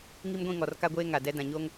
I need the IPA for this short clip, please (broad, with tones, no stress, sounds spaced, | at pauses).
ŋ i˦ m ɡʷ ĩ˦˨ ŋ ɔ˨ r k a˦ ɡʷ eː˦ ŋ a˨ d ɛ˦ d ã˨ ɲ oː˦ ŋ